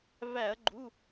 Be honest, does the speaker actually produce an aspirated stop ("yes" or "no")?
no